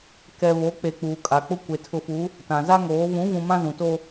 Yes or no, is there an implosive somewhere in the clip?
no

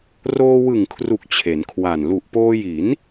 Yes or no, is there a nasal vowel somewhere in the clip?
no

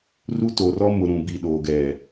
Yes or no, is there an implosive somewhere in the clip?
yes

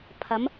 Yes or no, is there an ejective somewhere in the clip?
no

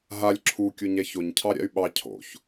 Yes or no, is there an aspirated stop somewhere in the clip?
yes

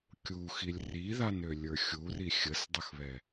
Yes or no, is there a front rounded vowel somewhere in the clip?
yes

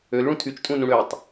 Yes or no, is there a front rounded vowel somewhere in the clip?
yes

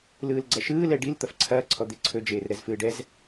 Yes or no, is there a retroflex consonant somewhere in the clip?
yes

